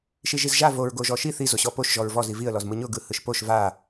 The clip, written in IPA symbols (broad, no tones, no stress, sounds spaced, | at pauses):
ʃ i ʒ i z ʒ a v o ɹ ɡ o ʒ ɔ ʃ i θ i z o ɕ ɔ p o ʃ ʒ ɔ ɹ v ɔ z i v i ə̯ l ɔ z m ɯ ɲ ʊ ɡ ɯ h ɯ ʃ p o ʃ v a